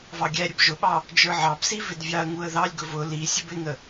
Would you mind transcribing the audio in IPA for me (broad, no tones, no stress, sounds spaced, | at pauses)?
v ɑ ɡʲ æ ɾʲ ə b ʒ ʊ ɓ ɑ | d͡ʒ ə˞ ʕ ɑ b s i v ɪ d vʲ ɑ ə̯ ŋ u ə̯ ð ɑ lʲ ɡ ʊ v ʊ l i sʲ ə b ɪ ŋ ə